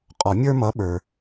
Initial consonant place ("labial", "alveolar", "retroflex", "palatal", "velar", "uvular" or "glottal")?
uvular